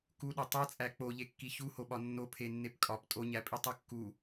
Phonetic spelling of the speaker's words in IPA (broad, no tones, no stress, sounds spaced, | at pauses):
k u ɗ o tˤ e t͡sʼ æ k͡p o ʎ e kː i ç u h o ɓ ɒ nː o pʰ e nː e p kʼ ɒ p tʼ o ɲ æ pʼ i tˤ u kː u